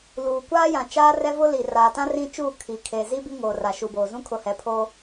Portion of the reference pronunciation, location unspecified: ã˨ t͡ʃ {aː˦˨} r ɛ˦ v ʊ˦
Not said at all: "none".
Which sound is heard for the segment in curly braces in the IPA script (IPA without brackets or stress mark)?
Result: aː˦